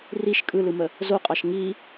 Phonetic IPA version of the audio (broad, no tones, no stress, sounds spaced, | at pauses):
r i ʃ kʼ ɯ l ɯ m ə | z o qʼ ɑ ʃ ŋ i